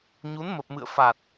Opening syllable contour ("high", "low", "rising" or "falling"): rising